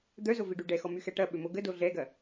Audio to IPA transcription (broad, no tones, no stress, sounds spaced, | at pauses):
d̪ œ z o v i ɖ y ɖ ɛ x ɔ m y x ɛ ʈ ɐ ɓ ʏ m o ɡ ə d o ɮ ɛ ɡ ɐ